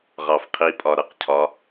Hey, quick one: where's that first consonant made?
uvula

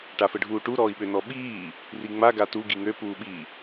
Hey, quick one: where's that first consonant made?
retroflex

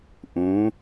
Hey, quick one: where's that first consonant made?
throat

